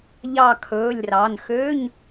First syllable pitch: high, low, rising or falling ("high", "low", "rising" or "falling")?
falling